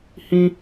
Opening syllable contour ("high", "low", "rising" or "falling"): high